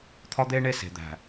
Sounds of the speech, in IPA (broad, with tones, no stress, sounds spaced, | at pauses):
t̪ʰ ɒ˦ d̪ eː˦ ɳ e˦˨ s e̤˨ d̪ æ̤˨